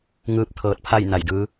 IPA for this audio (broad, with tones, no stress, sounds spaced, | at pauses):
ŋ ɯː˧˥ p̚ t̪ʰ ɤː˧ t̚ pʰ a˥˨ j n a˧˩ j d ɯː˧˥